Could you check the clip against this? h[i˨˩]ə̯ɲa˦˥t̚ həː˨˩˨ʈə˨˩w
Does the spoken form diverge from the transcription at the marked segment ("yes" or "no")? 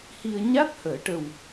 yes